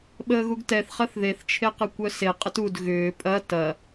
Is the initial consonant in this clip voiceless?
no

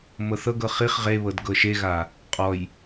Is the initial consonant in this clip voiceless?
no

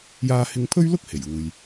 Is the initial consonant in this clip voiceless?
no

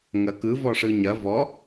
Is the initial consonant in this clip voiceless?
no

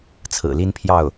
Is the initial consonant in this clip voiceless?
yes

